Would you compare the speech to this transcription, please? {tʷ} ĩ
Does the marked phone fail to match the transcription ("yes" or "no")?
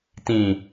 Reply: yes